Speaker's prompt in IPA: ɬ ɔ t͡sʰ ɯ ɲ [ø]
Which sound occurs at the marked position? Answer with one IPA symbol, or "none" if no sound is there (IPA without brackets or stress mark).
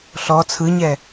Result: ɛ